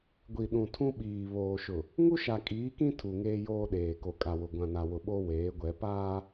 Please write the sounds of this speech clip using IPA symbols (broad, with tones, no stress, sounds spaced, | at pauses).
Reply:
ɡʷ i˨ ɗ ũ˨ tʰ ũ˦ ɓ iː˨ β oː˨ ʃ ʊ˨ | ŋ u˦ ʃ a˨ kʼ iː˨˦ k ĩ˦ tʰ u˨ ŋ eː˦ j oː˦ ɗ eː˨ k o˨ kʼ a˨ w ʊ˨ ɡʷ ã˨ n a˨ w ʊ˨ ɓ o˦ w eː˨˦ ɡʷ ɛ˨˦ p aː˦